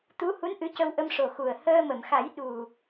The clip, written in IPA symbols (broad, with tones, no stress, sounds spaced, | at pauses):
t̪ u˧˥ h u˧˥ n ʔ ɨ˧˥ c ə˧ w ʔ ə˧ m ʂ o˨˩ x u˨˩ ə̯ h əː˧ m ə˨˩˨ m x a˨˩˦ j ɗ u˨˩